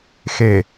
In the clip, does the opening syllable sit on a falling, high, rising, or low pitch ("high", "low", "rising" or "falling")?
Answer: low